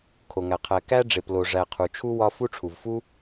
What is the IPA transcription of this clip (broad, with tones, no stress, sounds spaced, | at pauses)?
kʰ o˩ ŋ æ˩ qʰ æ˨ k æ˥ ɖ͡ʐ e˨ p l o˨ ʐ æ˨ qʰ u˩ t͡ʃʰ u˥ w ɒ˦ f u˥ ʈ͡ʂʰ u˩ v f u˥